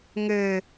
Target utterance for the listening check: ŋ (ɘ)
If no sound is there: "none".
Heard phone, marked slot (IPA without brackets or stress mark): ɘ